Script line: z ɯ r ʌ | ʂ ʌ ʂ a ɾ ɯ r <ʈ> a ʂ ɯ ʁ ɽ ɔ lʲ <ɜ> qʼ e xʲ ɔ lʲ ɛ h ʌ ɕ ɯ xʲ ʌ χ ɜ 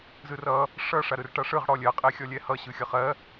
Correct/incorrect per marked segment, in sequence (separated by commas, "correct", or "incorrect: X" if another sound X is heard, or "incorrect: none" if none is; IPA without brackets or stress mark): correct, correct